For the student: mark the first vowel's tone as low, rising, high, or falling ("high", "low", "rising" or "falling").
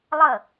falling